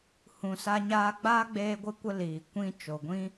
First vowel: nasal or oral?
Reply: nasal